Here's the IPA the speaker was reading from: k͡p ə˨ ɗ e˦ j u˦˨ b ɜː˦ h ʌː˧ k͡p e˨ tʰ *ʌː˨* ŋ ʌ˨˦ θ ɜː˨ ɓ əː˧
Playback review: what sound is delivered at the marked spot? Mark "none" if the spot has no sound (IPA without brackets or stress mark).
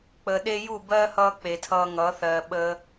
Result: ʌː˧